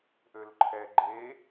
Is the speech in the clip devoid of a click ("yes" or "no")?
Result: no